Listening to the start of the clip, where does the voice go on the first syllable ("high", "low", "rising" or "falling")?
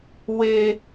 high